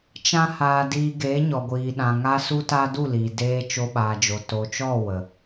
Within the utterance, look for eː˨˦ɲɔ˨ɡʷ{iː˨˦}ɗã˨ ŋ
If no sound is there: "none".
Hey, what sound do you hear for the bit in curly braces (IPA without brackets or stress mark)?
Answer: iː˨